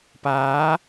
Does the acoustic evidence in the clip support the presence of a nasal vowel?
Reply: no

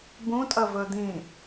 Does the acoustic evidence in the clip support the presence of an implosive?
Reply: no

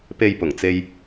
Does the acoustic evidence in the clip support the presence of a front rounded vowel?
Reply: no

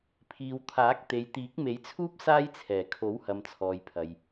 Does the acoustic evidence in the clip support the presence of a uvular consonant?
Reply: no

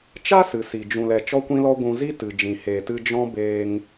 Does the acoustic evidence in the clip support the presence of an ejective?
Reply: no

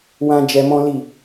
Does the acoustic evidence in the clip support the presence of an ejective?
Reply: no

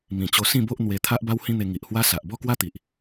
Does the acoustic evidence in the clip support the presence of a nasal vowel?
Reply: yes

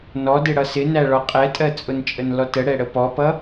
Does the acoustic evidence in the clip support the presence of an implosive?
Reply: no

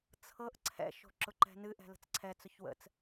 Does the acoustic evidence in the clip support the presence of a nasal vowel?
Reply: no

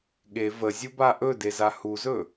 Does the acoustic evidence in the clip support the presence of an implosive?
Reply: yes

